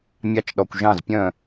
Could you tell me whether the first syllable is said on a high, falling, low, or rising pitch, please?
rising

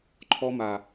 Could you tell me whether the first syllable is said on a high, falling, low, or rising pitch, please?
high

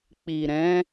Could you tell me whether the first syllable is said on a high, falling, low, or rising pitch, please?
low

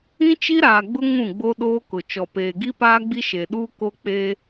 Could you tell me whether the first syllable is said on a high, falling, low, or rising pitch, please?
high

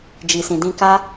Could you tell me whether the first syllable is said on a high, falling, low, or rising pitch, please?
low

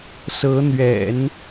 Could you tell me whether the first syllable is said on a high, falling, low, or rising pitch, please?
rising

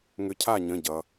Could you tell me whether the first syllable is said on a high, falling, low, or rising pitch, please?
rising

